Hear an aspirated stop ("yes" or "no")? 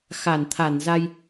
yes